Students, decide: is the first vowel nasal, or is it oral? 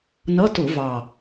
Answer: oral